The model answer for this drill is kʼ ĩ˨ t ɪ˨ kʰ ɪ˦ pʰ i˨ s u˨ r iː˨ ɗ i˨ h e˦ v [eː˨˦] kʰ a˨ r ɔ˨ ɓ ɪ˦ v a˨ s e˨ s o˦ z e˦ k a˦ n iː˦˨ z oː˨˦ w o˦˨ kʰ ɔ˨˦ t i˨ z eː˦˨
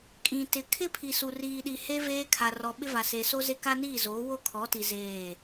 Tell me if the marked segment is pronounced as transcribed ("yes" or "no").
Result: no